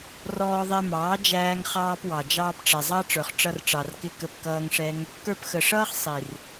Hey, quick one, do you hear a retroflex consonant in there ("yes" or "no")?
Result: yes